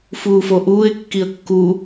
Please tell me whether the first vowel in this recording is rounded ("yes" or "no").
yes